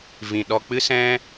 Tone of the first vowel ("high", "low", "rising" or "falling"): low